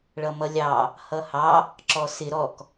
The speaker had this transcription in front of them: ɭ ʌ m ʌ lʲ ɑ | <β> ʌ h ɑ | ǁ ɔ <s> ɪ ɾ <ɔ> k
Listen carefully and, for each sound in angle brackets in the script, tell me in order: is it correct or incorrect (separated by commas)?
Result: incorrect, correct, correct